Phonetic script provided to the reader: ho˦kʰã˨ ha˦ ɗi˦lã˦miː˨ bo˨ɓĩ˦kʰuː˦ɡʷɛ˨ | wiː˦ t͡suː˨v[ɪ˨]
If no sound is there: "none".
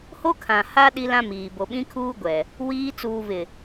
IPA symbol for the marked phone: ɪ˨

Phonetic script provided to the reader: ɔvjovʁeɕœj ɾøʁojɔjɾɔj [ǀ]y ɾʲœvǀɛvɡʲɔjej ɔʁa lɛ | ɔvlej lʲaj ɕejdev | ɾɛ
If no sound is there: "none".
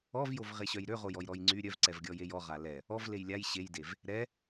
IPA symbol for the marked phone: ŋ͡ǀ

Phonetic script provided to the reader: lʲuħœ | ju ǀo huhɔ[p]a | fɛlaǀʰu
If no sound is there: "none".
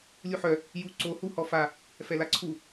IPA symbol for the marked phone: f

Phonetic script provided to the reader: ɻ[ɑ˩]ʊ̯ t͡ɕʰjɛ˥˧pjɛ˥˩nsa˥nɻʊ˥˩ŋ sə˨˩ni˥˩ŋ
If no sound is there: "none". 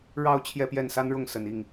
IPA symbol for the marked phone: ɑ˥˧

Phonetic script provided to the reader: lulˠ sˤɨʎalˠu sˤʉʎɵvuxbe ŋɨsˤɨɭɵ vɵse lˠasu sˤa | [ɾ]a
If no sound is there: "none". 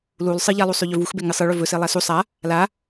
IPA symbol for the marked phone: l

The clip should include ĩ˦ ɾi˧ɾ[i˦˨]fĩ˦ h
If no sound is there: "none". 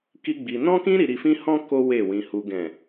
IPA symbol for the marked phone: i˧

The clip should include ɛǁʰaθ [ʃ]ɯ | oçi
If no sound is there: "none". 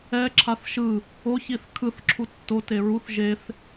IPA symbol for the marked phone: ʃ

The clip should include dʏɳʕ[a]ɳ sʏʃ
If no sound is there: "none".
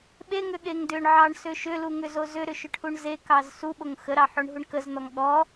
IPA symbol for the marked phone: ɑ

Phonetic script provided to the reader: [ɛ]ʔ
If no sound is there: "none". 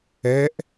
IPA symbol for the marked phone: ɛ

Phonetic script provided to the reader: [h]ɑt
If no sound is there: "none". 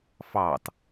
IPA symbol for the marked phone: f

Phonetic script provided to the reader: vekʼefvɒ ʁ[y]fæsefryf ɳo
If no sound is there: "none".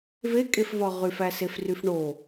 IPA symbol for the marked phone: y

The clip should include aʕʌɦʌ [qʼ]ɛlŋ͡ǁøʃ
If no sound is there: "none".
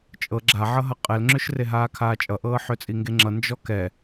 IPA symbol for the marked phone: qʼ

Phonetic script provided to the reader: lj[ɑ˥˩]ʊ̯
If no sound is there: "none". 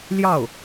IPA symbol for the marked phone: ɑ˥˩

